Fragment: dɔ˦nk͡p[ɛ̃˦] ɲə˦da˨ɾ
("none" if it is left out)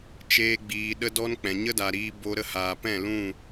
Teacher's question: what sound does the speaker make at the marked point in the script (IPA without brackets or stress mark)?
ɛ̃˨